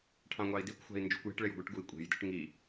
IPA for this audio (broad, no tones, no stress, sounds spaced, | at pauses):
ʈʰ ɑ̃ ŋʷ ɑ i̯ d i kʷ xʷ æ̤ i̯ n d͡ʒ ṳ kʷ j e̤ ʈ ɭ e j ɡʷ ɯ ʈ ɡ u i̯ kʷʼ e̤ j d ɯ ʈ ŋ i